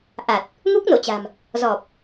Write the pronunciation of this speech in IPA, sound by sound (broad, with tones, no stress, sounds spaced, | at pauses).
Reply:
ʔ a˨˩ t̚ | ŋ u˦˥ k̚ n o̰˧˨ t͡ɕ a̤˨˩ m | z ɔ˨˩ p̚